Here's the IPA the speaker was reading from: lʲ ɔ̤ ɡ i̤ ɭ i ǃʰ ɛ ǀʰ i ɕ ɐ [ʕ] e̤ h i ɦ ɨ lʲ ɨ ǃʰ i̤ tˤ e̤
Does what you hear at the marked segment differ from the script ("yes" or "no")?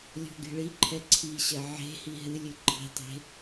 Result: no